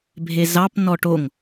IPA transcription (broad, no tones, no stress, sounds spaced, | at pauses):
bʱ e z ɑ p n ɔ ʈ o ŋ